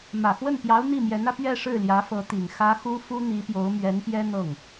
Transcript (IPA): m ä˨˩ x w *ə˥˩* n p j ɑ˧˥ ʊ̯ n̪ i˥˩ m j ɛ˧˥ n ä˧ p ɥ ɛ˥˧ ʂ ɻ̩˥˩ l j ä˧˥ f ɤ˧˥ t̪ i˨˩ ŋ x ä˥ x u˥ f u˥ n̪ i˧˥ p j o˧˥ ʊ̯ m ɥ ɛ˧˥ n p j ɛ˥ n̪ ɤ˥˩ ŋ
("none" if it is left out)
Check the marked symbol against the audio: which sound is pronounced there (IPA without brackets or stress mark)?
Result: ə˥˩